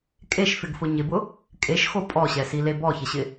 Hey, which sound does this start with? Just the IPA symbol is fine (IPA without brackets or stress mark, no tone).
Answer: kʼ